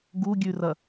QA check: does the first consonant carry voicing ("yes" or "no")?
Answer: yes